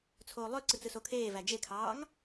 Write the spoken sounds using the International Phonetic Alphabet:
t͡sʰ oː lˠ ø ǀ ɯ t͡s ɯ s o kʰ eː v æ d͡ʒ e kʰ ɑː ŋ

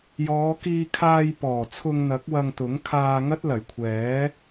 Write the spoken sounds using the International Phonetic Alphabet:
j ɔː˨˧ k iː˧ kʰ aː˧ j p ɔː˨˩ t͡sʰ ʊ˧ ŋ n̪ ɐ˨˥ k̚ w ɐ˧ ŋ t̪ ʊ˨˥ ŋ kʰ aː˧ ŋ ɐ˥ t̚ l ɐ˨˩ j kʷʰ ɛː˨˥

